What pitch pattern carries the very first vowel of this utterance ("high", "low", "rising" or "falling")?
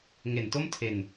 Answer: low